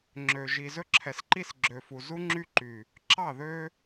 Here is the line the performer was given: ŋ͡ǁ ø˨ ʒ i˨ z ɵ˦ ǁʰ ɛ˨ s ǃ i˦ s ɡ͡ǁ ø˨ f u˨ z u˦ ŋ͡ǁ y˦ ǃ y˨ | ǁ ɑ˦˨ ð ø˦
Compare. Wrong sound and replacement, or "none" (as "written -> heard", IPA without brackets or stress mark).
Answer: none